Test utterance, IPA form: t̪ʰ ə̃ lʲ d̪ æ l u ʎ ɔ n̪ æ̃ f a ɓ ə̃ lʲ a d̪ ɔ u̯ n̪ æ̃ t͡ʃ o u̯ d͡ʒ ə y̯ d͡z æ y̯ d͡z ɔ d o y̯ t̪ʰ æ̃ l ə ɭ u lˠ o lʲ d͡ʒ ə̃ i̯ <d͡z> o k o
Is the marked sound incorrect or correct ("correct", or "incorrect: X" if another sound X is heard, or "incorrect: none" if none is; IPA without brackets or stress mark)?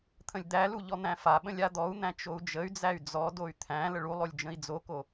correct